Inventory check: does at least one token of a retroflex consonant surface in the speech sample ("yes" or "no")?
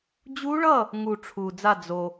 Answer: yes